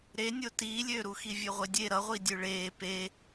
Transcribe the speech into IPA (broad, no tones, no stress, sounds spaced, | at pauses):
ɾ e nʲ o t iː lʲ øː ɾ u x i vʲ ø ʁʷ e dʲ e ɾ ʌ ʁʷ i dʲ ø ɭ eː p e